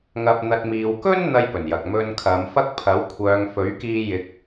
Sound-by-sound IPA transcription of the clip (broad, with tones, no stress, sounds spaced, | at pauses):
ŋ ɐ˧ p̚ n̪ ɐ˧ t̚ m iː˨ w k ɵ˥ n n̪ ɐ˧ j p ɵ˨˩ n j ɐ˨ k̚ m ɵ˧ n kʰ ɐ˨˧ m f ɐ˥ k̚ pʰ ɐ˨˥ w kʷʰ œː˨˧ ŋ f ɵ˨˥ ɥ k iː˧ j ɪ˧ k̚